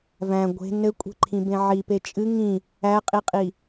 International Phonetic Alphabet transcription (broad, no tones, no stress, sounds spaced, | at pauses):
v æ̃ ɡʷ e̤ n ɘ kʷʼ e̤ ǃʰ ĩ b ẽ ʕ i p e t͡ʃʼ ɨ ŋ ĩ | æ qʼ i qʼ i